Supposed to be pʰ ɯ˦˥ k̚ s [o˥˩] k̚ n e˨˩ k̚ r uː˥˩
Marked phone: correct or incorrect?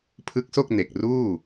correct